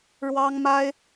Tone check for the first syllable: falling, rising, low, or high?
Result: high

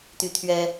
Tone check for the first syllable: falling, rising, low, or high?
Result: high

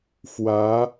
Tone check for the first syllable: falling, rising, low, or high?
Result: rising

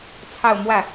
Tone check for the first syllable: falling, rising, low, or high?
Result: falling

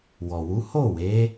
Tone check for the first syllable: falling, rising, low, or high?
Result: low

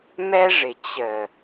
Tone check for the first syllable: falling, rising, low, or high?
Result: high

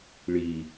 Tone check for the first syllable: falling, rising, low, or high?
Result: low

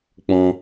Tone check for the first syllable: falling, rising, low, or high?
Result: high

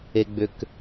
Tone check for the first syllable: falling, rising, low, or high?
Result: low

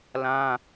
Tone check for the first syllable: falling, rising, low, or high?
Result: high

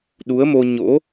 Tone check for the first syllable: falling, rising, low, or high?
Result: rising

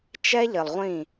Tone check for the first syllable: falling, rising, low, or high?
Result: high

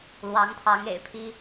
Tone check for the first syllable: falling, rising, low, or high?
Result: rising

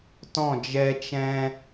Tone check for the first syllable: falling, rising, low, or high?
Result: falling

